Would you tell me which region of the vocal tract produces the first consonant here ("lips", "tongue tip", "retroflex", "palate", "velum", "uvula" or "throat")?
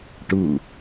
retroflex